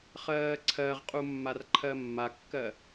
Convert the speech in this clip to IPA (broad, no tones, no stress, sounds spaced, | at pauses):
χ ɜː ǀʰ ɜ ʁ qʼ u mː a r ǃʰ ɜ mː a kː ɜ